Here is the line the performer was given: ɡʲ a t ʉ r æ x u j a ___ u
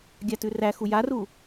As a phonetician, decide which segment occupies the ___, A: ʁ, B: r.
B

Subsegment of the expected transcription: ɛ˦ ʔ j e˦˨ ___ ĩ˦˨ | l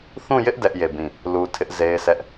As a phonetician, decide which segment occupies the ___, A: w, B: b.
B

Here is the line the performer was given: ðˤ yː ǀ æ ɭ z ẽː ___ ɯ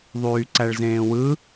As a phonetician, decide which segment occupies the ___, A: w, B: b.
A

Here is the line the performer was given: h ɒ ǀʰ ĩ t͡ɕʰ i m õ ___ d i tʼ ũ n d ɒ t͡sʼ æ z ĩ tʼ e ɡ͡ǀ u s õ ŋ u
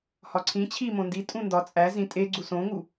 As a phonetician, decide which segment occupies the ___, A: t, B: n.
B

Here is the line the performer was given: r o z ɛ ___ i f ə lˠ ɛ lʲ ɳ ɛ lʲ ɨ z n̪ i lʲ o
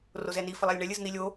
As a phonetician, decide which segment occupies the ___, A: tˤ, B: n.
B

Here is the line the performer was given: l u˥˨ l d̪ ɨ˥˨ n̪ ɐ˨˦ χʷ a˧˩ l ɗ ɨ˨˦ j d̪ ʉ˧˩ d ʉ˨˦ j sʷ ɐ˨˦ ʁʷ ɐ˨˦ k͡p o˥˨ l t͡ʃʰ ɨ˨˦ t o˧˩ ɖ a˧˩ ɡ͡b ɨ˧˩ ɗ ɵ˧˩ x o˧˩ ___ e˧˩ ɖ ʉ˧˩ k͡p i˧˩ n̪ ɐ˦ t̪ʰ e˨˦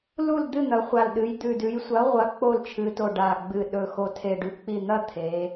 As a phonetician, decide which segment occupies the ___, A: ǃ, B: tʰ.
B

